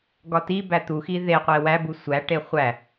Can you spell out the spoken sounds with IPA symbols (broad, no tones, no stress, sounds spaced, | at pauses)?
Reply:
ɡ ɒ t i b æ t̪ u x i ð e qʷ e w æ b u sʷ æ ʈ e χʷ æ